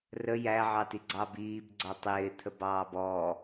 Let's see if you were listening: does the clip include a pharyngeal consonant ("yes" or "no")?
yes